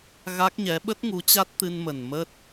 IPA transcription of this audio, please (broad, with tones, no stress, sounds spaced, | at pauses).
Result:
ɣ a˦˥ k̚ ɲ ɛ˨˦ ɓ ə˦˥ t̚ ŋ u˨˦ t͡ɕ a˦˥ t̚ t̪ ɨ˧ n m ə˨˩ n m ə˦˥ t̚